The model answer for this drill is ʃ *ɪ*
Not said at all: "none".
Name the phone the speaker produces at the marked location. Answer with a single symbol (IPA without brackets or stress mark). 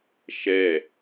ɛ